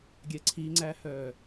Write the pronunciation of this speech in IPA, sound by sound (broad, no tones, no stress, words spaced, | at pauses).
ɡʲɛǀʰiŋ͡ǀæhœː